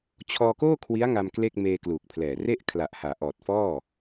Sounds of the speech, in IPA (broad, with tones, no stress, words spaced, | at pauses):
t͡ɕʰɔː˧koː˥˩ kʰwi˦˥a̯ŋa˧m kle˥˩k̚ meː˧kluː˨˩k̚pʰlɛː˨˩ re˥˩ʔkʰla˨˩ʔhaː˩˦ ʔɔː˨˩t̚fɔː˥˩